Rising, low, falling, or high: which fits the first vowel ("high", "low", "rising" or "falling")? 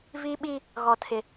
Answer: high